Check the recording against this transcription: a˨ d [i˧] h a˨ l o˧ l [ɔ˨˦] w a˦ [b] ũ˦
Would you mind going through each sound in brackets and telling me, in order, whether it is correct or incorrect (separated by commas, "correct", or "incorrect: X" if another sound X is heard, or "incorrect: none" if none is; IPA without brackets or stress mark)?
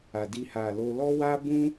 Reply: correct, incorrect: ɔ˦, correct